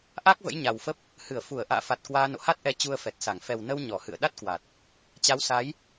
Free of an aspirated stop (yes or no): yes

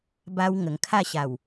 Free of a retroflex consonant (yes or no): yes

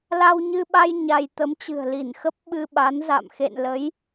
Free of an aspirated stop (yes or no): yes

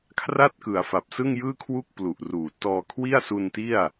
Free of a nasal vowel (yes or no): yes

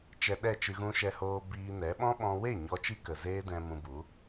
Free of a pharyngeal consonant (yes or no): yes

